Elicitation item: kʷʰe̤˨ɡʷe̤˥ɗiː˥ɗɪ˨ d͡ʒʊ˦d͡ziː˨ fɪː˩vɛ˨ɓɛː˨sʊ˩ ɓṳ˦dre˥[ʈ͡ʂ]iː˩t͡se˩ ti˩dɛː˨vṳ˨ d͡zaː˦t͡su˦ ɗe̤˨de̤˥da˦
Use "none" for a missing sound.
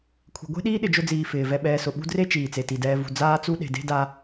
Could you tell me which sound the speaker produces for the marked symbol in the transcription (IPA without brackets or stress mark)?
t͡ʃ